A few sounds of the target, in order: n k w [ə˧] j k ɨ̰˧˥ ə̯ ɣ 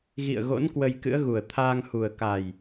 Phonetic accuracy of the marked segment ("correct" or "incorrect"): correct